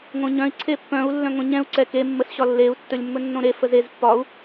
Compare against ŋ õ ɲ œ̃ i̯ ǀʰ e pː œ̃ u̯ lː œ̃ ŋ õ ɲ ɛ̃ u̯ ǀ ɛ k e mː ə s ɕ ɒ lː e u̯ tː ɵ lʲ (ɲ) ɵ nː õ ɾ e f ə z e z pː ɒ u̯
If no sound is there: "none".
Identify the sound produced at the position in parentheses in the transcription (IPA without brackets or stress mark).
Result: mː